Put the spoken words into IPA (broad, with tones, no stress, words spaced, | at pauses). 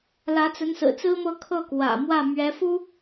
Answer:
lä˧˥t͡sə˧˥nsɹ̩˨˩ t͡sɹ̩˥mɤ˥˧ kʰɤ˥˩kwä̰˨˩mwä˥˩ mɥɛ˧˥fu˥